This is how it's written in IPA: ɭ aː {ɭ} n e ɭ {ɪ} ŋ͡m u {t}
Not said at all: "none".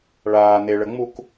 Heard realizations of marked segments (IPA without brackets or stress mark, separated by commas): none, ə, k